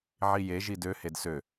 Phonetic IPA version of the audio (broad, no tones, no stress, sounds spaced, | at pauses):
ʕ i j e ʒ i d ø h e d s ø